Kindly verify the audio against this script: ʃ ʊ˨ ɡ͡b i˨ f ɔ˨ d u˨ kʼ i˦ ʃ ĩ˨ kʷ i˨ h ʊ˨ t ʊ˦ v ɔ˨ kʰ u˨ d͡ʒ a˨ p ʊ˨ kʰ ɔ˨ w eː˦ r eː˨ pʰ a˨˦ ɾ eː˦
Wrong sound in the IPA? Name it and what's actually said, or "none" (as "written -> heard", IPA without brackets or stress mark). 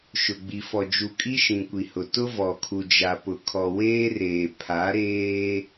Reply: d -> d͡ʒ